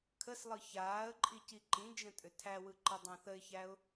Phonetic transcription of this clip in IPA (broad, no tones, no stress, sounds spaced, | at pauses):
kʰ ə s lˠ ɯ ç aː ə̯ ǃʼ i c i ǃ ĩ d͡ʒ ə̃ tʼ ʏ tʰ æ w ɯ ǃ i dˤ ã θ ə ɪ̯ ç æ ʊ̯